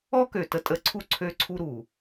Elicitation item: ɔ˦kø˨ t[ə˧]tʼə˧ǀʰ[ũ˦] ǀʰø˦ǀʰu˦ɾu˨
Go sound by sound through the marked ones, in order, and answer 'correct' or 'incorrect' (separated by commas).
correct, incorrect